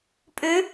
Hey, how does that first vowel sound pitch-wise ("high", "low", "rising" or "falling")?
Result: rising